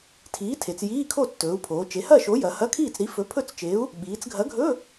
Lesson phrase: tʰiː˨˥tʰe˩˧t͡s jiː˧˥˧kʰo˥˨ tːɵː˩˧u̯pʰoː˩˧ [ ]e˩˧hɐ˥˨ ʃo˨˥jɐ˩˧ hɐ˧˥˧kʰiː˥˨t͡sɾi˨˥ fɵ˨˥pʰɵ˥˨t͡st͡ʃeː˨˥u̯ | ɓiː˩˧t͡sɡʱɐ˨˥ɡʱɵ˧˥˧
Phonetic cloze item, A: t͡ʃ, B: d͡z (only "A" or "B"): A